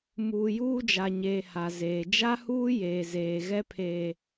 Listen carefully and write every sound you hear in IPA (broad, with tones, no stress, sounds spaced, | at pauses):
m uː˨ j uː˦ d͡ʒ a˨ ɲ eː˨ h a˨ z eː˨ d͡ʒ a˦ h uː˦ j eː˨ z eː˨ ɣ ɛ˦ pʰ eː˨